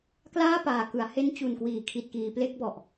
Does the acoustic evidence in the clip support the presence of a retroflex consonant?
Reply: no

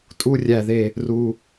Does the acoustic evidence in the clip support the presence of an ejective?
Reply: yes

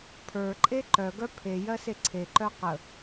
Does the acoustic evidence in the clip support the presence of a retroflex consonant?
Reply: no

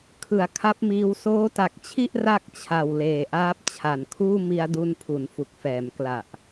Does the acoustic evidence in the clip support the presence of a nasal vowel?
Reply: no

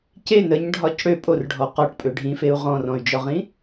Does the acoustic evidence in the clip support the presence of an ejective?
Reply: yes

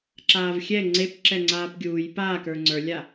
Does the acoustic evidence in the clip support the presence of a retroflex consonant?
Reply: no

